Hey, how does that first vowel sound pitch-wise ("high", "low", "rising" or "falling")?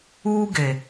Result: high